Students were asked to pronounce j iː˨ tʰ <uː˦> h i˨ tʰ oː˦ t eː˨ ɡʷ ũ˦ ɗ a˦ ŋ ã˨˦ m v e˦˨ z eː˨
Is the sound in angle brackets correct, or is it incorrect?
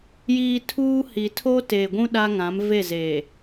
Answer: correct